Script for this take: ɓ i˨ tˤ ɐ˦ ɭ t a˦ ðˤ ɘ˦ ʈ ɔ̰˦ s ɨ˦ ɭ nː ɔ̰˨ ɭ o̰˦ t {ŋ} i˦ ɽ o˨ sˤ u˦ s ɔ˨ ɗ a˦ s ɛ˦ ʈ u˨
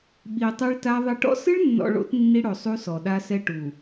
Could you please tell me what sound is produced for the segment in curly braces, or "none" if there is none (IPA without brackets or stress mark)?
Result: nː